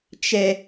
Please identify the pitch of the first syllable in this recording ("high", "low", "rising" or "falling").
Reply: high